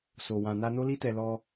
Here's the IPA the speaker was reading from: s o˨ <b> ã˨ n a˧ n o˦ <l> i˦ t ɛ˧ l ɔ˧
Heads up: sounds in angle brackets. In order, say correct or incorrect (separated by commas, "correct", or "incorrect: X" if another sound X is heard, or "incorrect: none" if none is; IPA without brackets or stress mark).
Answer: incorrect: w, correct